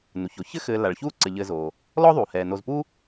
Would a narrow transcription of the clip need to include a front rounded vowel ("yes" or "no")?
no